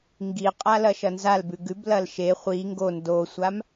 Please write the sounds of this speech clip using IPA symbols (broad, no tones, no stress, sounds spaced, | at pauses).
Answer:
ŋ ɡ i qʼ a l ɐ ʃ ɐ n z a l b ʉ ɡ ʉ b l ɐ l ʃ e χʷ i ŋ ɡ o n d o sʷ a m